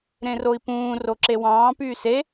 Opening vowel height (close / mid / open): mid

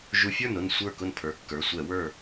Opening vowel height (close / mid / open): close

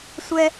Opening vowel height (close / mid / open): mid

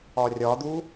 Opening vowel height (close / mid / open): open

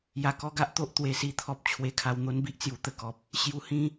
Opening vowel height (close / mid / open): open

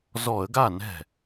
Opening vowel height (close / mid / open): mid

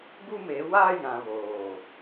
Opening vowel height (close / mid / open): close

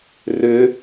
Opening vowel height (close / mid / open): close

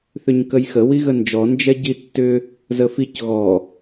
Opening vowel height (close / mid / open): close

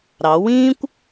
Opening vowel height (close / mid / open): open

